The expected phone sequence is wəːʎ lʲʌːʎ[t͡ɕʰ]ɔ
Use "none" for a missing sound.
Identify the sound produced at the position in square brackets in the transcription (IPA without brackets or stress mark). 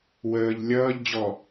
d͡ʑ